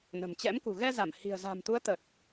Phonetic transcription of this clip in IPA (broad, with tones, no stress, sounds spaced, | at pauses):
n ə̤˨˩ m t͡ɕ ɛ̰˧˥ m k ṳ˨˩ ɣ ɛ˧ z a˧˩ m h i̤˨˩ ə̯ z a̤˨˩ m t̪ u˨˦ ə̯ t̪ ə˨˩ t̚